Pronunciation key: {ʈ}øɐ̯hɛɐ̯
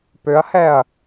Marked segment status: incorrect: p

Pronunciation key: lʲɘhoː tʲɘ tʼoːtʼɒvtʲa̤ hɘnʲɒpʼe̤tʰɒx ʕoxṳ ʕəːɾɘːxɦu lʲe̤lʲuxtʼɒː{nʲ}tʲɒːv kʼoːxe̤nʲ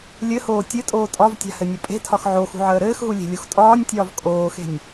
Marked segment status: correct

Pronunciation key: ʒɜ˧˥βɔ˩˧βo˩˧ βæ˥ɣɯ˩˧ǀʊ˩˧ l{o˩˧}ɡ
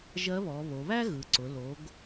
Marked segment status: correct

